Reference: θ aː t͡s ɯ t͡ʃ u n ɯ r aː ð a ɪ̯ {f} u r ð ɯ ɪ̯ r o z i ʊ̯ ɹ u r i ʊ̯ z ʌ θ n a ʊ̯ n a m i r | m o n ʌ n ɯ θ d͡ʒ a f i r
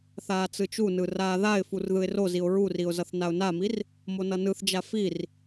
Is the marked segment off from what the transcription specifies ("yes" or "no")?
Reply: no